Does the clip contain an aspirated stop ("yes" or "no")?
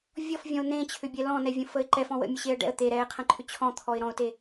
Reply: yes